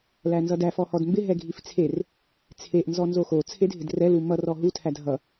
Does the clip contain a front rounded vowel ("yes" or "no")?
no